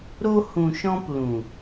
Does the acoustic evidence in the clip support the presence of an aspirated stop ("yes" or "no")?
no